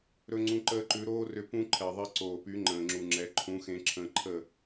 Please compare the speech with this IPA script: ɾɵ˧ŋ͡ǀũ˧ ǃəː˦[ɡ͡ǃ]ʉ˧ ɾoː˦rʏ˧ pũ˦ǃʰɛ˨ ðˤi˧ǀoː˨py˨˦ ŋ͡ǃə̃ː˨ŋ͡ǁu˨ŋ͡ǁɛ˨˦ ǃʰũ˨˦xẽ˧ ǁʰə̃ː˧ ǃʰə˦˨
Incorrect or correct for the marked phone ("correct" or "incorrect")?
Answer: incorrect